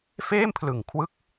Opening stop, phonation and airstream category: aspirated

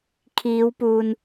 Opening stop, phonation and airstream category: aspirated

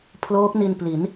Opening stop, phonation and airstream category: aspirated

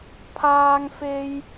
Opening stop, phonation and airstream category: aspirated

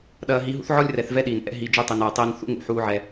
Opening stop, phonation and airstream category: implosive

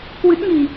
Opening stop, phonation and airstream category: plain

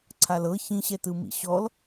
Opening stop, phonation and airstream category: click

